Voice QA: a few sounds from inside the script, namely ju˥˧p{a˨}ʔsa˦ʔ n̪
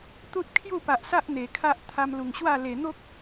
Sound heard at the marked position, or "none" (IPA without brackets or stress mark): a˨